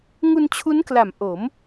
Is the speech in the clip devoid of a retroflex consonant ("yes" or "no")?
yes